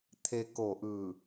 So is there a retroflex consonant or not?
no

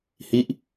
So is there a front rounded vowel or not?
no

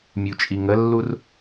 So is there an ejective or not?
yes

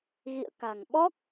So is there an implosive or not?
yes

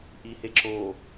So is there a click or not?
yes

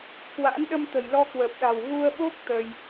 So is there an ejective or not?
no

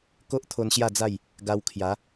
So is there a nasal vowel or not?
no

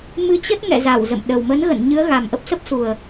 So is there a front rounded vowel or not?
no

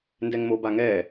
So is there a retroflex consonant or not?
no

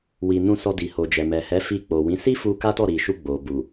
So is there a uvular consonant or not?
no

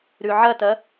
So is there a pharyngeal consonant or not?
yes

